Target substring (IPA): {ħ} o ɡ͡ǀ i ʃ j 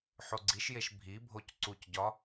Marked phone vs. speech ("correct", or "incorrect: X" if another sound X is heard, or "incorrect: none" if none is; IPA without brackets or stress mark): correct